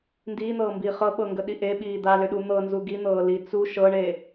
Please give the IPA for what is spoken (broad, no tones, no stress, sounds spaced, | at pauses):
n d iː n̪ ɤː m b iː χ ɤ ɓ ɤ ŋ ɡ ə ɗ i ʔ e ɓ iː d̪ a l ʏ ɗ u n̪ ɤ n z u ɡ i n̪ ɤː l i t͡s u ʃ ɤ ɳ e